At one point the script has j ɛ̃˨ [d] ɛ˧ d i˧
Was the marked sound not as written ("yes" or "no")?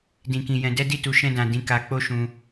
no